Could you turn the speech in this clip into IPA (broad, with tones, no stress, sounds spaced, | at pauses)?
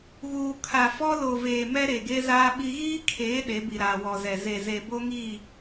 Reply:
ɣ uː˨ kʰ a˨ f ɔ˦ l o˨ v eː˨ m ɛ˦ ɾ e˨ ɡ e˦ z aː˦ ɓ i˦ ɣ iː˦ kʰ eː˨˦ ɗ e˨˦ b i˨ ɾ aː˨ w ɔ˨ z ɛ˨ z e˨ z e˨ b o˦ ŋ iː˦˨